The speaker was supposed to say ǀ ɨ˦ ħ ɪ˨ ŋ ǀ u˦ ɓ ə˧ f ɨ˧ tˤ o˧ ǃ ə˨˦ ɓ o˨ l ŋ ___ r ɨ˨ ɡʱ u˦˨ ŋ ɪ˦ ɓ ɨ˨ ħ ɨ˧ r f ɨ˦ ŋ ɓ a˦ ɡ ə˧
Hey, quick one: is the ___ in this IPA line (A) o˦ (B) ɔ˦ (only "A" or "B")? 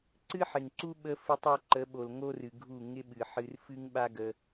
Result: A